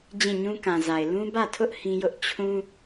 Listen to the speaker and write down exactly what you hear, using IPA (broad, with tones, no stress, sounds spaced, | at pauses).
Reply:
d͡ʑ ĩ˦˨ ɲ ũ˦ k ã˨ z a˨ ɪ̯ l ũ˦ b ä˦˨ tʰ ʊ˦ ʔ h ĩ˦ j ʊ˦ ʔ t͡ɕʰ ũ˦